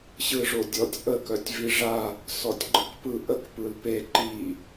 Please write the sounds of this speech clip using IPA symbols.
ɕ ɯ ʐ o dʲ ɔ tʲ ʔ ə k œ tʲ v i ʐ a | s ɔ tʲ ɡ͡ǃ ɯ k p ɯ ʔ ə k p ɯ l p e ǃ i

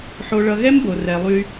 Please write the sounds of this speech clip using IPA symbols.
ħ o˨ ɭ ʌ˨ ɣ ɛ˦ m b o˨ r ɛ˨ lˠ y˦

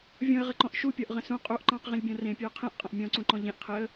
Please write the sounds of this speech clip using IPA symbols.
vʲ ɔ̃ ə̯ ʁ ə ǃ ɔ̃ ʔ ʃ u pʲ ɔ ʔ ʁ ə̃ s ũ qʼ u ʔ ǃ ɑ̃ q ʁ ĩ lʲ bʲ ɔ̃ r ẽ pʲ u ə̯ qʰ ẽ ʔ qʼ ə̃ ʔ mʲ ɔ̃ ǀ ũ ǃ ɔ̃ ʎ ẽ ʔ qʰ ɪ ə̯

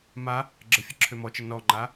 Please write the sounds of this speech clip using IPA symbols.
m a | ɡ͡ǁ ə fʲ ə ǁʰ ø m ɔ t͡ʃ ə n ɔ ŋ͡ǃ a

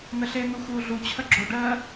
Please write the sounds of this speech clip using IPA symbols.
n̪ ə ɬ e n̪ u x uː ɮ u t͡ɕʰ ə ɡ͡ǁ o ɖ ɜː

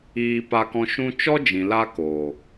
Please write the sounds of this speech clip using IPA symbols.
iː˧ p a˧ k ɔ̃˧ ʃ ũ˧ t͡ʃ ɔ˦ d͡ʒ ĩ˨ l a˧ k oː˨

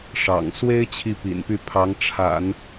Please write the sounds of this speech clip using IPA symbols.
ʂ ɑ̰˨˩ ŋ s w e˥ ɪ̯ t͡ɕʰ i˥˩ p ḭ˨˩ n p y˥˩ pʰ ɑ˧˥ ŋ ʈ͡ʂʰ a̰˨˩˦ n

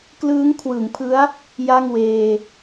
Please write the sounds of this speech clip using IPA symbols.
k l ɯː˦˥ ŋ kʰ w ɯ˩˦ ŋ pʰ ɯ˦˥ a̯ | j a˥˩ ŋ w eː˧

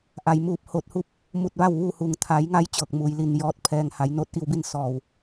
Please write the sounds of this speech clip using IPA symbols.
ʔ a˩ j m uː˧˩ p̚ h oː˧˩ t̚ h u˧ p̚ | m u˧˩ t̚ ʋ a˥˨ w ʋ uː˥˨ h u˩ ŋ t̪ʰ a˩˧ j ŋ a˧ j t͡ɕ ɤː˧˩ k̚ m uː˩ j l i˧˩ n j ɔː˧ t̚ pʰ ɛː˧ ŋ h a˩˧ j n oː˧˥ t̚ ʔ i˧ w b i˥˨ n s ɔː˧˩ w

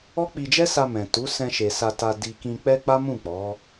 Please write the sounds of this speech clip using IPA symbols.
ɔ˦ k͡p i˧ d͡ʒ ɛ˦ s a˧ m ɛ̃˨ t u˨˦ s ɛ̃˧ ʃ e˨ s a˨ t a˨ d i˨ k ĩ˧ k͡p ɛ˦ k͡p a˦ m ũ˦˨ k͡p ɔ˨˦

